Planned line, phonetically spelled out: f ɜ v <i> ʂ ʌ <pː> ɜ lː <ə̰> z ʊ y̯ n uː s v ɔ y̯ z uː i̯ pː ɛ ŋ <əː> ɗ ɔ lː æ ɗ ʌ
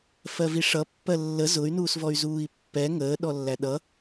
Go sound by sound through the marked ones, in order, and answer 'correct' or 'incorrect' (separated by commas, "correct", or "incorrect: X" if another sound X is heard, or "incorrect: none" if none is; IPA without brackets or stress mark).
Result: correct, correct, incorrect: ə, correct